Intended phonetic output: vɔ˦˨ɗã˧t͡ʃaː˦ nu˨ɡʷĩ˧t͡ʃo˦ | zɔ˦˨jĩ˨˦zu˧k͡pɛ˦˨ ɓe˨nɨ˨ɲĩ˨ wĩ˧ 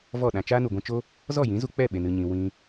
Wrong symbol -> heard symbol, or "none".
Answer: none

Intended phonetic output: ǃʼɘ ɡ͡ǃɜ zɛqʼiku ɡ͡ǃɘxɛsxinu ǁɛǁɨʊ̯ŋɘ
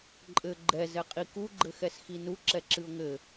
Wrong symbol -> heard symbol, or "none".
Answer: ɜ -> ɛ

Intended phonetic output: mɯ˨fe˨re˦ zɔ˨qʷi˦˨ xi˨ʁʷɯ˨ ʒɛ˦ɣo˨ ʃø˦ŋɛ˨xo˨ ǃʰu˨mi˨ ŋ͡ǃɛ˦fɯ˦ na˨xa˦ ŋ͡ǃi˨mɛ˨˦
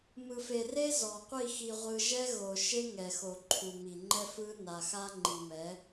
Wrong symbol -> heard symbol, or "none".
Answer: ø˦ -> e˦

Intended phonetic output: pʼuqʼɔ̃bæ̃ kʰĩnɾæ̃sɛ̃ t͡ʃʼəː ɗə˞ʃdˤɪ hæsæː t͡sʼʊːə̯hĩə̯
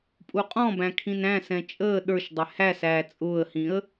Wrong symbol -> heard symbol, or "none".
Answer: none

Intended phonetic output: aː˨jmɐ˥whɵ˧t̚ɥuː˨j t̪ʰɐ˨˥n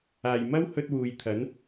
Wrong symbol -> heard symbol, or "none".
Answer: ɥ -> w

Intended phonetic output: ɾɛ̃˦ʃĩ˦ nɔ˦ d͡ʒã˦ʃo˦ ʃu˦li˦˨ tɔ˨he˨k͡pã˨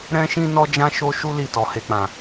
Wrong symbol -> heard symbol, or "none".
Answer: none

